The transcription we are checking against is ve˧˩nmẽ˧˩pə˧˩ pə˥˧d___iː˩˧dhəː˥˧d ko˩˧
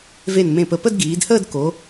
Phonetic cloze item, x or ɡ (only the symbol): ɡ